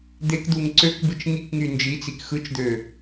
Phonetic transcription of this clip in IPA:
d̪ e k d̪ u ŋ ǀ ø k b ɯ t͡ʃ ŋ i k ŋ y n d͡ʒ i t͡s i k x ɯ t͡ʃ d̪ ø

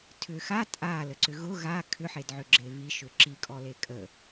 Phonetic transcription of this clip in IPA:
tʰ ʏ x a tʼ a l ə ǀ ʏ ɣ ʊ ɣ a kʰ ʏ ħ e d ʕ ʏ ɡ͡ǁ e β i ʃ ʏ ǁ i kʼ ɔ l e kʼ ə

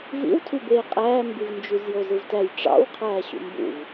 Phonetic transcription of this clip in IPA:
v ḭ w tʰ y b eː qʼ æː m b y v n d͡ʒ y z j o z ɯ v t æ j ʈ͡ʂ ɑ̰ w qʰ æː ɕ ṵ m b ṵ v

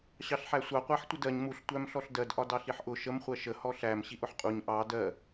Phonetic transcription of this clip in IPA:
ɕ ɑ ɬ ħ æ sʷ ɑ qʷ æ ħ tʷ ə d ɜ ɲ m u ɬ tʷ æ m ɬ ɔ ɬ d ɜ d ʔ ɒ d ɑ ɬ i ħ ʔ ʊ ʃ ə m χʷ ɜ ʃ ə h ɔ ɬ æ m ɕ i ʔ ʊ ħ qʼ u ɲ ʔ ɑ d ɜ

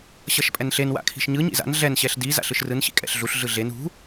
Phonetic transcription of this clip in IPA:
ɕ ʌ ʃ pʼ ɛ n ɬ e n w a̰ kʰ i̤ ʃ ɲ ɯ ɲ ḭ z a̰ n ɮ ɛ n ɕ ɛ ɬ d i z a̰ ɬ ɯ ʃ r ɯ n ɕ ḭ kʼ ɛ̰ ɬ ɮ u ɬ ɮ ɯ ɮ e n ṳ

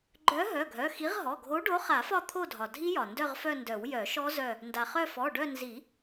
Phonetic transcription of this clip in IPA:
ɡ͡ǃ œ˨˥ ɦ œ˩˧˩ ɡʱ œ˩˧˩ x i˨˥ ʁ ɦ ɔ˩˧˩ ɡʱ o˨˥ ɖ o˨˥ χ a˨˩˦ f ɒ˦˨ t̪ʰ o˦˨ dʱ ɒ˩ dʱ i˦˥ j ɒ˩ n d œ˦˨ ʁ f œ˦˨ n d œ˨˩˦ w j œ˨˩˦ ʃ ɔ˦˥ z œ˦˨ | n d a˩ χ œ˦˨ f ɔ˩˧˩ ɖ œ˦˨ n z i˨˩˦

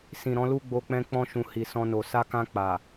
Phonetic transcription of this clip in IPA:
s ĩ˨ ɾ ɔ̃˨˦ l u˦ ɡ͡b o˧ k͡p ɛ̃˧ k͡p ɔ̃˧ ʃ ũ˨ h i˨ s ɔ̃˧ n o˨ s a˧ k ã˧ k͡p a˨

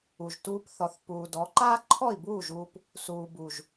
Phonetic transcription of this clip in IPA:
u˨ ʒ t uː˧ p θ ɔ˨ θ p uː˨ d ɔ˨˦ ǃ aː˦ ǃʰ ɔ˦˨ i̯ b uː˦˨ ʒ uː˧ p | s uː˨ b u˨ ʒ

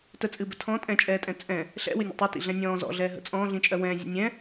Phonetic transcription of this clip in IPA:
t ə t͡sʼ ɨ b ə tʰ ɔ̃ tʼ ɛ̃ t͡ʃʼ ɛː tʼ ɛ̃ t͡sʼ ɛ̃ | ɬ ɛ̰ w ɨ nʲ ə̰ tˤ i t ḭ ɮ ɛ̃ nʲ ɔ̃ː z ɔ̰ ɮ ɛː ɦ ə̰ t͡sʼ ɔ̃ː ɮ ĩ t͡ʃʼ ɜ w ɛ̃ː zʲ ə̰ nʲ ɛ̃

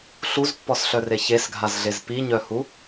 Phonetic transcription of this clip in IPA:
ɬ u z pː ɔ s ɬ œ r e ç e s ɡʱ a z ɮ e z p i ɲ œ h u

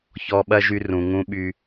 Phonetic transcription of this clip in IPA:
ç ɔ˦ ɓ ɐ˥ ʒ y˦ r ũ˨ ŋ ũ˦ ɓ y˦

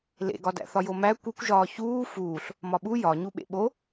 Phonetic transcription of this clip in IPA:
l ḛ ɡ ɒ d æ̰ θ ɒ j o m æ kʷ i kʷ ʒ ɒː ç uː f uː ɬ | m ɒ ɓ u j ɒ ɲ u ɓ ḛ ɓ o

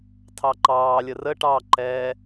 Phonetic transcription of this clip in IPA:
tʰ ɑ ǃ ɑː lʲ ə r ə ʈ ɑ ǃ ɛ

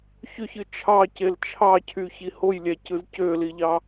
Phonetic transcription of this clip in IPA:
ç ø ç ɯ t͡ʃʰ ɑ c e l t͡ʃʰ ɑ cʰ y ç i h o j lʲ æ c ɯ z c ø l i ʎ ɑ

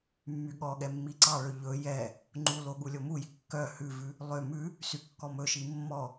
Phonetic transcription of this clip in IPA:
mː y ɠ ɔ ɠ ɛ mː i ǀ ɑ ɭ ø ʎ ɵ j ɛ | ŋ͡ǃ u l o ɠ u lʲ o m u j i kː œ h ʉ v ʉ | lˠ ø m ʉ | s y kː ɔ m ɵ ʃ i mː ɔ

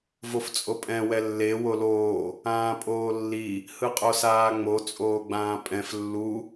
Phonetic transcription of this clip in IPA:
v o f t͡sʼ o pʼ ɛ̃ w ɛ lː e w o l oː | ãː pʼ oː lː i | h ɯ qʼ o s aː ŋ͡m o t͡sʼ oː ɡ͡b ãː pʼ ɛ̃ f lː u

